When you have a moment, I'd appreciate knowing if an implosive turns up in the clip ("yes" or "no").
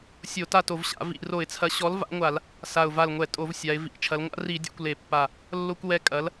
no